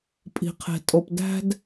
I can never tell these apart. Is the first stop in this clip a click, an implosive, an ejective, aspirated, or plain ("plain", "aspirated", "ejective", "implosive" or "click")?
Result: ejective